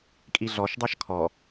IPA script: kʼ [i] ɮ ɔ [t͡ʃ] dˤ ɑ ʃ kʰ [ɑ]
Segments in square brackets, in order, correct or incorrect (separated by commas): correct, incorrect, incorrect